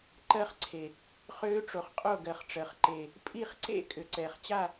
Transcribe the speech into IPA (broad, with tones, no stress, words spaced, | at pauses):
ǃɜ˦˥χǀʰe˨ | χøː˦˥ʈ͡ʂo˨χqʼo˥˨ɡɜ˨χ ʈ͡ʂɜ˨χǃe˨ | pʼi˥˨χǀḛ˥˨ kʼʏ˨ǀɛː˨χt͡ɕa˥˨